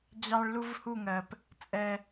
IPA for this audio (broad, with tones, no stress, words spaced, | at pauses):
d͡ʑɑ˦ɭlu˦vhu˦˨ŋɜ˨p | t͡sʼɛ˦